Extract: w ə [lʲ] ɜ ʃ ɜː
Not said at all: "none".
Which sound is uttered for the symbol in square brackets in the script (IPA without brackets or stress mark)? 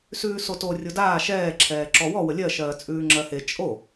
lʲ